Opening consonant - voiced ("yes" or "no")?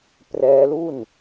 no